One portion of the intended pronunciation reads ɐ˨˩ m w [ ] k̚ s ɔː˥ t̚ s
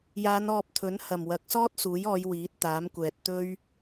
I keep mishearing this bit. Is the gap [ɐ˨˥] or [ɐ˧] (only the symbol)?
ɐ˨˥